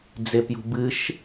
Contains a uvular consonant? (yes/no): no